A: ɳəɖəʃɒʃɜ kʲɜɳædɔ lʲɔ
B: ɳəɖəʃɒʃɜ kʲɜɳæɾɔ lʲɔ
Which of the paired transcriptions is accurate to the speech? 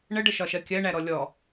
B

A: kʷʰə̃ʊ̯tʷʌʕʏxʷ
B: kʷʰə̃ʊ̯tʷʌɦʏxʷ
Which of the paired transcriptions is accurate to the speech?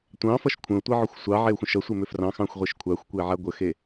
A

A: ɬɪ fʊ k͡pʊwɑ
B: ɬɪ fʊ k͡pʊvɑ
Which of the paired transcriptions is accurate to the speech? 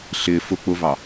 B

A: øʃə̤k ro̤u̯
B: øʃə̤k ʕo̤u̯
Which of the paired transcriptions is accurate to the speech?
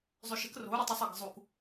A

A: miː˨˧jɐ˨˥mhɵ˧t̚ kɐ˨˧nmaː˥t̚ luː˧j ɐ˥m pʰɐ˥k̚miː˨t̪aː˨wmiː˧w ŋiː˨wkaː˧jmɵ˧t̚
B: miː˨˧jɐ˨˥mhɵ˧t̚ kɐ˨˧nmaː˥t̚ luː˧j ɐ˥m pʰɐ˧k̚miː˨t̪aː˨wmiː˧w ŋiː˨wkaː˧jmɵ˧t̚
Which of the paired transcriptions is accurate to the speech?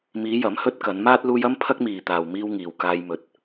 A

